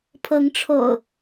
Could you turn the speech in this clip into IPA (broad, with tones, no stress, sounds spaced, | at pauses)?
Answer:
pʰ ɤ˨˦ ŋ ʈ͡ʂʰ o̰˨˩ ʊ̯